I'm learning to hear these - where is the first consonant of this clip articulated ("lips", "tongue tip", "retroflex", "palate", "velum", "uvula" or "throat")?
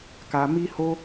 velum